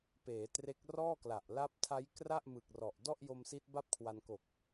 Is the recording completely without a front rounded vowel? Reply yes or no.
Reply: yes